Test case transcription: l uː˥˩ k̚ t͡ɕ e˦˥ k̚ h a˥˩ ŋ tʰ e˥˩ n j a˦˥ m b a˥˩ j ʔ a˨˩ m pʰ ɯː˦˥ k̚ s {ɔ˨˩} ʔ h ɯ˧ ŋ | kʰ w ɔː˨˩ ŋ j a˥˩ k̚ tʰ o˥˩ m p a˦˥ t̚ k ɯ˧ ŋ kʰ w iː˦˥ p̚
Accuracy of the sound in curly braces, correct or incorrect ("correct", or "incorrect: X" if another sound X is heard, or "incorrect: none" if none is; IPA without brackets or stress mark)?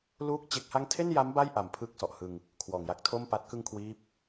correct